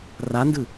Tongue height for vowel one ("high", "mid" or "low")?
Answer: low